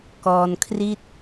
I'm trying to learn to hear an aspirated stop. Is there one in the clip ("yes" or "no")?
yes